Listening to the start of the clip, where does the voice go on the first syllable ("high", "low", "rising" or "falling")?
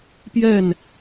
falling